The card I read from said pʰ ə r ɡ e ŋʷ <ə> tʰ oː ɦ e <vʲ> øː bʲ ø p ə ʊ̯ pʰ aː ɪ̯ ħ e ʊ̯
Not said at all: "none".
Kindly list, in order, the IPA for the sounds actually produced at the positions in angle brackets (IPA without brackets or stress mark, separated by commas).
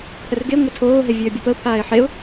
ə, vʲ